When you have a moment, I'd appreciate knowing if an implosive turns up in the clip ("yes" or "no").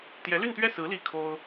no